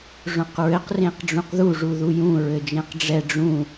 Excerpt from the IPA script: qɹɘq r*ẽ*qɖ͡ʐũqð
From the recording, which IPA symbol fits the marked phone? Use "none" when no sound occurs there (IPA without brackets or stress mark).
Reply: ẽ